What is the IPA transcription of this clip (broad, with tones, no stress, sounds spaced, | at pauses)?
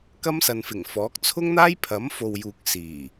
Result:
k ɐ˥ m s ɐ˨ n f ɪ˨˩ ŋ f ɔː˨˥ k̚ t͡sʰ ʊ˥ ŋ n̪ aː˥ j pʰ ɐ˨˥ m f o˨ w j uː˨ k̚ s iː˨˩